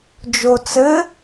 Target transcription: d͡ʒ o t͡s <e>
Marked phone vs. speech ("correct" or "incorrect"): incorrect